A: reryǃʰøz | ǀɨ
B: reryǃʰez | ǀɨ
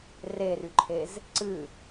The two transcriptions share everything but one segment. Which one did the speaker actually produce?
B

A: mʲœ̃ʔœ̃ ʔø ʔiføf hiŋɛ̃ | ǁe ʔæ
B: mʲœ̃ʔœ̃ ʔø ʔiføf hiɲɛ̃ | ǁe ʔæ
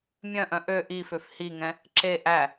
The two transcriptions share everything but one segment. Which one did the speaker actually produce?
A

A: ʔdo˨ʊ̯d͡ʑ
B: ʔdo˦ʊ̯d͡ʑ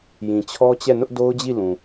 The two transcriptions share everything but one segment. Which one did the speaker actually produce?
B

